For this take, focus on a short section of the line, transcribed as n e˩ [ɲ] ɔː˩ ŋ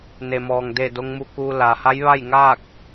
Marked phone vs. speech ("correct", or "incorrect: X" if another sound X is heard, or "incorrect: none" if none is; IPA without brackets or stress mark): incorrect: m